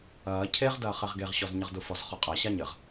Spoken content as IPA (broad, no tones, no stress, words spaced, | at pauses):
ɐː cʰeʁdɐː χɛʁɡeʁɕɔz ɲɘʁdufɔzχɔ qʼaɕa ɲɘʁ